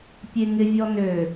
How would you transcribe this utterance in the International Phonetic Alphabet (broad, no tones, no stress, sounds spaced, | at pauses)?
pʲ e ŋ ɪ vʲ ɔ n ø